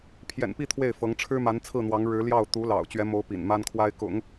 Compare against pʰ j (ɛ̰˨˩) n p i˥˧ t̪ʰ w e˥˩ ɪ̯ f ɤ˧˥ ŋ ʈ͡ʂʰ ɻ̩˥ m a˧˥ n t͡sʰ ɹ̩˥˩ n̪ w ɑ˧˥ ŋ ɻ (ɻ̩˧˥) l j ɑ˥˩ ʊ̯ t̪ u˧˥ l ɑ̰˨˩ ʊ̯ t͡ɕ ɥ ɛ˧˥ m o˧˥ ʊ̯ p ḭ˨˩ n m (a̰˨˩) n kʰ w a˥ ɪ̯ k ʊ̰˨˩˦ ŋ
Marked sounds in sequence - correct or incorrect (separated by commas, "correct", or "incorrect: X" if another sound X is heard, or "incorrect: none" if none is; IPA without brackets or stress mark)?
correct, correct, incorrect: a˥